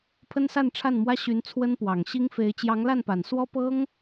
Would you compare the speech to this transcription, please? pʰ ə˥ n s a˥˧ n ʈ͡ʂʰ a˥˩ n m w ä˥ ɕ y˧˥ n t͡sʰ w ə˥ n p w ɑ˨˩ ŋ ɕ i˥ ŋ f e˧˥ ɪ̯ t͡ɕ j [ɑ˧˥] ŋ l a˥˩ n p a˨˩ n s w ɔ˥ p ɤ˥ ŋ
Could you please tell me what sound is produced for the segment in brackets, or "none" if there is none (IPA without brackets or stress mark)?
ɑ˧˥